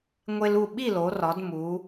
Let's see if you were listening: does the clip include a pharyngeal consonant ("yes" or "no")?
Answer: no